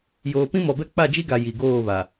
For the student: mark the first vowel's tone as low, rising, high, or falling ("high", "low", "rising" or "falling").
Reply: low